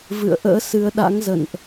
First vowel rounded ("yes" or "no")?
no